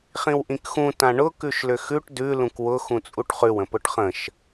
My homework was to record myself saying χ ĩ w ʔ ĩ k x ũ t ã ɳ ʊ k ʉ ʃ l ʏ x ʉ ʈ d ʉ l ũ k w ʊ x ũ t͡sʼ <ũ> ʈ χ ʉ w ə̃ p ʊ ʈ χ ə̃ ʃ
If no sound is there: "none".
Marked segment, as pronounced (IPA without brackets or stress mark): u